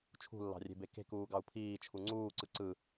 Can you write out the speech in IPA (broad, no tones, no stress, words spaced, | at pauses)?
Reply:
t͡ʃʰṳlːɑ̤rʲe̤be ke̤kuːɡɑu̯ pʰiːt͡ʃʰu ŋ͡ǀuːǀɯ ǀɯ